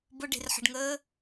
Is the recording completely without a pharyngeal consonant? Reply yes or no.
no